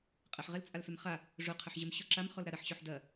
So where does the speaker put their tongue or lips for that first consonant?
uvula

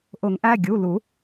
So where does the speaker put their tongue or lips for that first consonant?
throat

